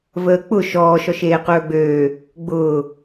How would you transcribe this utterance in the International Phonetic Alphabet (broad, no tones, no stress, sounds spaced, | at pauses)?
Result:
v əː k͡p ʊ ʃ ɔː ʃ ɔ ʃ eː q ɵː ɡ͡b øː | ɡ͡b ʊː